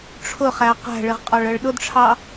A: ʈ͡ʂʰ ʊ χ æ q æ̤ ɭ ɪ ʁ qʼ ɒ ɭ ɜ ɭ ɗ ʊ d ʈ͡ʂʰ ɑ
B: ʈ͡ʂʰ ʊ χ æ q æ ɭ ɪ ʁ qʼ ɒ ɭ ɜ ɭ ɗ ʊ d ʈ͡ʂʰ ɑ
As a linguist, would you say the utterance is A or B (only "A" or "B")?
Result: A